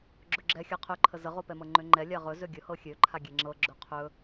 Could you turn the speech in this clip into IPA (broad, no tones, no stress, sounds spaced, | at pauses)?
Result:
ɡ͡ǁ ɵ ɡ͡ǁ ɛ xʲ a qʰ ɵ ǃʰ ə z ə ʁ o p ɛ m ɤ ŋ͡ǃ ø ŋ͡ǃ ɛ lʲ a ʁ ɵ z ø ɡʲ ɵ h ɤ xʲ ø ǃʰ a ɡʲ ɛ ŋ͡ǁ ɤ ɡ͡ǁ ɵ qʰ ɵ